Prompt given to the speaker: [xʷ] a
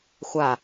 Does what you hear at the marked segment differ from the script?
no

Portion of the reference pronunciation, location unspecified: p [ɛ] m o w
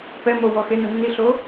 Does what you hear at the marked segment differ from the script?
no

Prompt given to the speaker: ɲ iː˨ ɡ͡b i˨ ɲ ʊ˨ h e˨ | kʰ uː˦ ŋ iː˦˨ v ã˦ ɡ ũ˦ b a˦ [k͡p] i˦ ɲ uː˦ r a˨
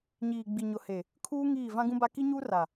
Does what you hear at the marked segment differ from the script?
yes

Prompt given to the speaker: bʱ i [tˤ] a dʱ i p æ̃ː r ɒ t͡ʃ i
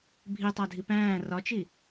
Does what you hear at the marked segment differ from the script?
no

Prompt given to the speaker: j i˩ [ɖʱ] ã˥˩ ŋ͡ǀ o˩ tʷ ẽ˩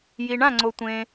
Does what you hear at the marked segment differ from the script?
yes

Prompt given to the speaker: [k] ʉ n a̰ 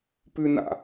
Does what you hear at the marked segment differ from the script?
yes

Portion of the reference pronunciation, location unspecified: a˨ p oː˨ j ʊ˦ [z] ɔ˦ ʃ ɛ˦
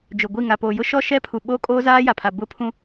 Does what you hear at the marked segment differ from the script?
yes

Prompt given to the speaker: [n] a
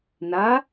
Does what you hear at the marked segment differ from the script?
no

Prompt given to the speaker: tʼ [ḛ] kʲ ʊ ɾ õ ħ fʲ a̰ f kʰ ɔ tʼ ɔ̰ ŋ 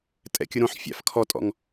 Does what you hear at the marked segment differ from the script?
yes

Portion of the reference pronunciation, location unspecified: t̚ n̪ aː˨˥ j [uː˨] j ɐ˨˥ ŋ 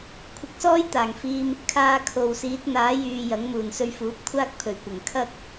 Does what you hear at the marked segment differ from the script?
yes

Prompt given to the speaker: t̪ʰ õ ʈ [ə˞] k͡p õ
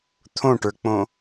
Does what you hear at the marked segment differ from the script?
no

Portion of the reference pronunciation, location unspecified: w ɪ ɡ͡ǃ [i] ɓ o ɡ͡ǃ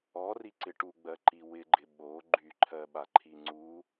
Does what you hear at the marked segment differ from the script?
yes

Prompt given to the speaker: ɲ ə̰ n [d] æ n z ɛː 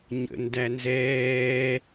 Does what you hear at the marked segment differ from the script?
no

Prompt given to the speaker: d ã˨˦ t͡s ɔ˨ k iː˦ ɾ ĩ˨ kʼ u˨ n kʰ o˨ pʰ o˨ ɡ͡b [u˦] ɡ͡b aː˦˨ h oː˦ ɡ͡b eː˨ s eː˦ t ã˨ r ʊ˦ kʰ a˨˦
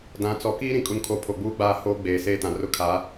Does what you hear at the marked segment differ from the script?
yes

